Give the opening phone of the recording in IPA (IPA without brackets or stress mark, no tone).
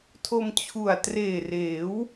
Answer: tʰ